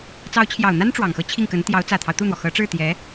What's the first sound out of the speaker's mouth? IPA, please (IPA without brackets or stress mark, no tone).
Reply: t͡s